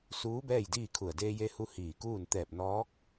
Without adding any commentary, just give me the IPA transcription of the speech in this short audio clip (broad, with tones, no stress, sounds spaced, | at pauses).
s uː˧˥ b ɛː˥˨ j d iː˥˨ kʰ u˧˩ ə̯ d eː˧ j e˧ h u˧ h iː˧˩ k uː˥˨ n t̪ ɛː˧˩ p̚ n ɔː˧˥ k̚